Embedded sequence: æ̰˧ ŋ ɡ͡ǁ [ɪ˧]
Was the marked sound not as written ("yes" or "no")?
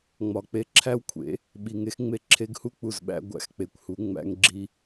yes